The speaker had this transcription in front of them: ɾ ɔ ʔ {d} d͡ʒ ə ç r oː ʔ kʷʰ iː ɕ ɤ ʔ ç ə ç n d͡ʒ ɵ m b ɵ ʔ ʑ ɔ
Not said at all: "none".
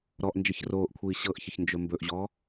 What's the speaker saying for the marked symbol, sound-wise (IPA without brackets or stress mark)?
n